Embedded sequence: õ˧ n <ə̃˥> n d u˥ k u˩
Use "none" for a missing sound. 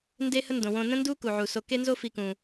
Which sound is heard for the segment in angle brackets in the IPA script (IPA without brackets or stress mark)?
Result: ə̃˥